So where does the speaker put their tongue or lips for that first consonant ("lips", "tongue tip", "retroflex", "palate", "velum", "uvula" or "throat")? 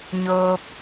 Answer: palate